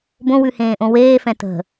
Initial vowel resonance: nasal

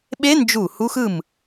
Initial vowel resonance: oral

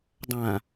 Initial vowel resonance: nasal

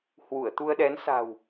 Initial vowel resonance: oral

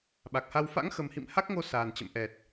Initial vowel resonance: oral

